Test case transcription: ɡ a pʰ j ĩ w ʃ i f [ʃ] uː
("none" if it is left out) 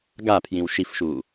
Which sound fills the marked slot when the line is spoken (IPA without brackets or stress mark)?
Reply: ʃ